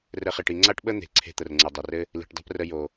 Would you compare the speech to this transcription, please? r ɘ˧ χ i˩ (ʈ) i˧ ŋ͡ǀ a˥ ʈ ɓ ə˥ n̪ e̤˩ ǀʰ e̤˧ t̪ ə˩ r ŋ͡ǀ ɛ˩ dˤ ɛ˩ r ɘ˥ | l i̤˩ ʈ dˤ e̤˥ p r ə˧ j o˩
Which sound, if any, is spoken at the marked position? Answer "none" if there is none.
ʈ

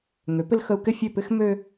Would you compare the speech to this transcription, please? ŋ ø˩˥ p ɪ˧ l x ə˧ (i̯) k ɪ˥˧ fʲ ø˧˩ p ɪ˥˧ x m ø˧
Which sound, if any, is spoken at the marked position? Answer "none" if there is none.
u̯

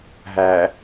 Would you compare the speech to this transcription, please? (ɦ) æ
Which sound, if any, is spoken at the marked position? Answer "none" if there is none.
ɦ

